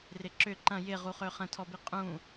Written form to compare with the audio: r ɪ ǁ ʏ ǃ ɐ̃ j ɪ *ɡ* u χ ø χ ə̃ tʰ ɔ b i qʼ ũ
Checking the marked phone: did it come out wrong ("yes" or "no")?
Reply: yes